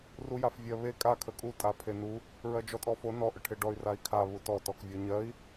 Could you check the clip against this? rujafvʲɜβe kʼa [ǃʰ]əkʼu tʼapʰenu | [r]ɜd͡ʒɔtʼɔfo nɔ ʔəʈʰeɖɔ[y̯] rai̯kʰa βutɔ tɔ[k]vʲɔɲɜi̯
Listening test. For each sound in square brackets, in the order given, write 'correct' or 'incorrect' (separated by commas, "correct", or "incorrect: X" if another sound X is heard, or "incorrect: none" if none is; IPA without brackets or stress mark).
incorrect: kʰ, incorrect: ɹ, correct, correct